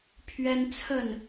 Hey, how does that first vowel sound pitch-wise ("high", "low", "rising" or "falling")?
high